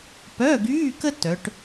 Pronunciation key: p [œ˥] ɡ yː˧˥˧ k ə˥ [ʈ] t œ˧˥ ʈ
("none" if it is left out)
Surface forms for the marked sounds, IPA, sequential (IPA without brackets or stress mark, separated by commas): œ˧˥˧, none